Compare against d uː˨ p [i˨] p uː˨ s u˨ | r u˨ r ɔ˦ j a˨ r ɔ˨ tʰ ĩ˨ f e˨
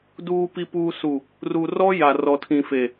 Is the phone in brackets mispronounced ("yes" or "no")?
no